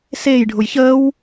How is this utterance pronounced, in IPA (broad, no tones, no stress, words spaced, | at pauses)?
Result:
seːjɖʱʊj çəːw